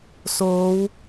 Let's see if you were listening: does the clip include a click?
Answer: no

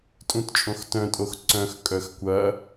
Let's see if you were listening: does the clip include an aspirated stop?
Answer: no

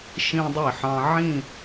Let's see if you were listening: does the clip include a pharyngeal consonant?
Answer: yes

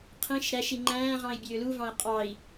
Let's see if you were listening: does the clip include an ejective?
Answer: yes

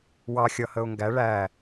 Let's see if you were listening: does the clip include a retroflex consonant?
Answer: yes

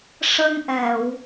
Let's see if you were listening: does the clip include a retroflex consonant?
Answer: yes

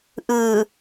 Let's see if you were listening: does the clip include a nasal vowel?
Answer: no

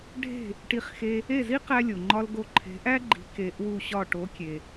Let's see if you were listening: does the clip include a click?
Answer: yes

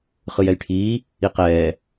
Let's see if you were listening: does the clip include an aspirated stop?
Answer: yes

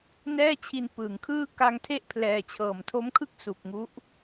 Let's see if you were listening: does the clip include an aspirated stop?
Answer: yes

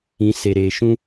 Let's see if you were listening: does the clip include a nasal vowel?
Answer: yes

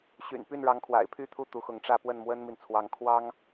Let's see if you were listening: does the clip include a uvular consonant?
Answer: no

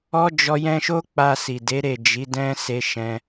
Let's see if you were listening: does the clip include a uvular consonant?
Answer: no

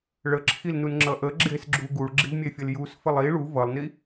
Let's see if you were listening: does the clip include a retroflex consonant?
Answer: yes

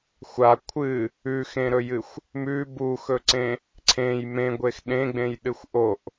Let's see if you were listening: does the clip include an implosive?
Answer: yes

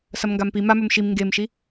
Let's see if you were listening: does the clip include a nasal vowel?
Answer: no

